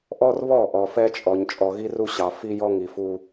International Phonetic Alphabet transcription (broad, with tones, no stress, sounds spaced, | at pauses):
ʔ ɔ˦ r β ɔ˦˨ ʔ ɔ˨ f ɛ˦ t͡ʃʼ ɔ˨ ɲ t͡ʃʼ ɔ˨ ɣ i˦ r u˦ ɕ ɑ˨ f i˦ j ɔ˦ ŋ i˨ f u˦